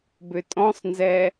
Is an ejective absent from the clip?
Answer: no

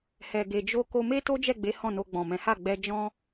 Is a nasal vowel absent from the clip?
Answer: no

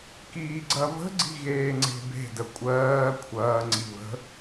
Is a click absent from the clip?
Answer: no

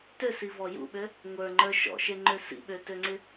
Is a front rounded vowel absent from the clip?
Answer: no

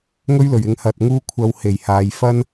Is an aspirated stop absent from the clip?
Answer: no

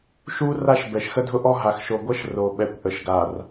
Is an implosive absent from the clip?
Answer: no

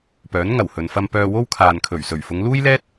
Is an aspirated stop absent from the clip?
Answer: no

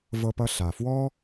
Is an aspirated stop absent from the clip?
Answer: yes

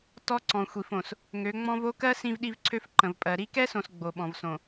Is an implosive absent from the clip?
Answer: no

